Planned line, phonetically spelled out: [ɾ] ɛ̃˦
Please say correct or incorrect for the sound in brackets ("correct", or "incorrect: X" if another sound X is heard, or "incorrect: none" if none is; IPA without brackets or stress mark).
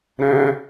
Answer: correct